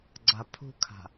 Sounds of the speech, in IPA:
ɡ͡ǀapʰṳkʰa̤

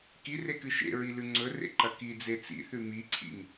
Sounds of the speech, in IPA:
kirekɨ ʃḛɹilʉ ŋ͡ǀɵrḛǃɐ kid͡ze t͡sḭθʉ miǀʰḭŋ

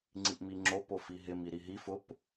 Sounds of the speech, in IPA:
ŋ͡ǀiʔmiŋ͡ǁo pofiɦɪm iɾiɦi fʊp

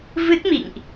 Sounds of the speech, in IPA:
vɨ˦˥t̚mḭ˧˨ŋʔ

